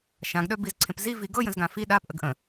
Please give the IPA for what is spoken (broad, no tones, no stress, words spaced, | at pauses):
ʃãɡɗœbizǀʰẽp zivi ɡɤjə̃zɡã fi ɗapʔəɡ ʔə̃